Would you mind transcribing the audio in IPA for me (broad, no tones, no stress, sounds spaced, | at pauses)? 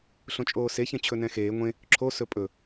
ɬ õ t͡ʃʼ oː s e ç ɛ̃ t͡ɕʰ ɵ n ɛ̃ x eː ŋʷ ẽ | ǁʰ o s ɵ pʼ ɵ